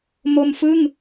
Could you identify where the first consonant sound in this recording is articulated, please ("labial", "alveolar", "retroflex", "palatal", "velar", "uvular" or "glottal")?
labial